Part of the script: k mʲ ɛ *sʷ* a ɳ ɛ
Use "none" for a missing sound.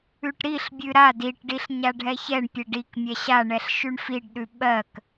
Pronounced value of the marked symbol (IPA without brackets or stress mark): ɕ